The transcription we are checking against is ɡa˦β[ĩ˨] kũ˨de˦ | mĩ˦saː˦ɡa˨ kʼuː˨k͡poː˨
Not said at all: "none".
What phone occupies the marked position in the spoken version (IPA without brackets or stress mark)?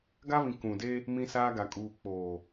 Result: ĩ˨